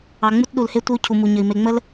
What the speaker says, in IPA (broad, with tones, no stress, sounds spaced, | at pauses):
ɑ˨ ŋ͡m u˦ t ɗ u˨ l h e˦ tʷ ə˦ u̯ cʰ u˨ m u˨ ɲ ə˨ i̯ m e˨ ŋ͡m ə˦ l